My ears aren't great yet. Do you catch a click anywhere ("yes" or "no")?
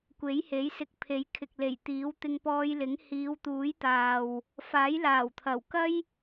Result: no